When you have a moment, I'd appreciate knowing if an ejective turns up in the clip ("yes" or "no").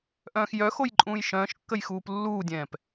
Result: yes